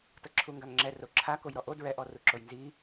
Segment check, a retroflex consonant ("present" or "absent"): absent